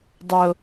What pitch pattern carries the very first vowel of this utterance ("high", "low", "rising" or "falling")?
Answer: low